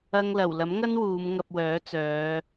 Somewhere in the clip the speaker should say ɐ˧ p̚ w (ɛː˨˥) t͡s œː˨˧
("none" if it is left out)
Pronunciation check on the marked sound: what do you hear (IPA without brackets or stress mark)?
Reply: œː˨˥